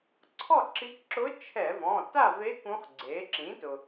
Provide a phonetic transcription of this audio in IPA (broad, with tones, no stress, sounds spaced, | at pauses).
ǀʰ ɔ˥˨ ǁ i˧˥ k ǁ ʊ˧˥ t͡ʃʰ ɛ˧˩˧ v ɔ̃˩˧˩ t a˥˨ v e˧˥ k ũ˧˥ χ ɡ͡ǀ e˩˥ ǁ ĩ˩˥ t ʊ˩